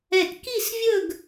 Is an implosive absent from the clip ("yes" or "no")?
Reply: yes